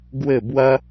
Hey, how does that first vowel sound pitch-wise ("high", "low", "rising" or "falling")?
falling